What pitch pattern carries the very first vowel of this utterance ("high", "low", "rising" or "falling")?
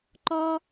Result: high